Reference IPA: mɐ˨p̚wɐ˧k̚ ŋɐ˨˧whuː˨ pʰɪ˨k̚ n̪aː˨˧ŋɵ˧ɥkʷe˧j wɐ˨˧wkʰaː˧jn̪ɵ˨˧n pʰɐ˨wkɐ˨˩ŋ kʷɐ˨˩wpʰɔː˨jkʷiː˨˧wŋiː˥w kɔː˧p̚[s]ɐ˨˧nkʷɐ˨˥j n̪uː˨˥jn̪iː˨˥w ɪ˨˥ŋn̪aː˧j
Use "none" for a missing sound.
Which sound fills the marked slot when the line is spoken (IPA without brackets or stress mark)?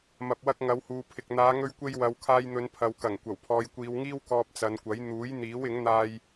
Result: t͡s